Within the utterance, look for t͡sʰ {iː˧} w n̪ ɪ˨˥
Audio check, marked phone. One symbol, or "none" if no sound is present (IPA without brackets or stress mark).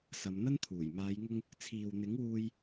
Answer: iː˨